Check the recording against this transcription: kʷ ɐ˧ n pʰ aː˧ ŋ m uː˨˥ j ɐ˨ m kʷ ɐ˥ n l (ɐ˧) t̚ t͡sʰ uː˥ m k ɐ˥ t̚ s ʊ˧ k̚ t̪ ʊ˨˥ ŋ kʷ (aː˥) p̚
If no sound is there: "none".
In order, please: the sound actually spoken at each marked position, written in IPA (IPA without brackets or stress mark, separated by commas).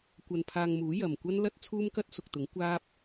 ɐ˥, aː˥